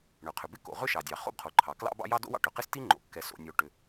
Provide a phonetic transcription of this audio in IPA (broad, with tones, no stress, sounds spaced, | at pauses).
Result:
ɳ ʏ˩ qʰ ʏ˩ b ɪ˥ k o̰˩ ʁ ʏ˥ ʃ ɑ˩ dʲ ɑ˩ χ o̰˥ b qʰ o˩ ǃʰ ɑ˩ k l ɑ̰˥ b ɑ̰˥ j ɑ˥ d o̰˥ w ɑ̰˥ ʈ ʏ˩ q ɪ˥ s t i˥ ŋ͡ǃ o̰˩ kː ɛ˩ s o̰˩ nʲ o˩ ʈ ʏ˩